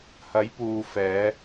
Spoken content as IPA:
h ɐ˨˥ j p uː˨ f ɛː˨˧

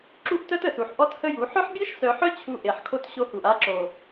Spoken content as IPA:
ǁ u˦ ʔ t œ˦ t ə˨ s u˨ ħ ʔ ɔ˦ t h ə˦ j u˨˦ ħ œ˦ ħ bʲ e˦ ʃ s œ˨ ħ œ˦ t͡ɕʰ u˦ ʔ e˨ ħ kʰ o˦ t ɕ o˦ h u˨ ʔ a˦ ǁ o˨

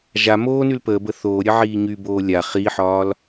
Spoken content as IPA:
ʒ a m oː n y l p əː b ə θ oː ɾʲ ə ʕ iː ɲ y b oː lʲ a χ iː ħ ɒː l

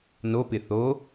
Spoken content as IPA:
n o p ɪ θ o

